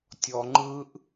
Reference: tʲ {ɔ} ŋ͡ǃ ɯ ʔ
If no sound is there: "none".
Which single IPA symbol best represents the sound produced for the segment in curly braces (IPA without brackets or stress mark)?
ɔ